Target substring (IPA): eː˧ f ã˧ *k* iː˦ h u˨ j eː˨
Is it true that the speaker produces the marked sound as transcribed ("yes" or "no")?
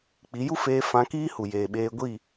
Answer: yes